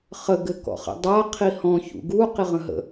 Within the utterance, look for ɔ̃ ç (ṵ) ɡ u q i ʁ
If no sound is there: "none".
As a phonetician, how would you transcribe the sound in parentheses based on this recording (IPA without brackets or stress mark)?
ṵ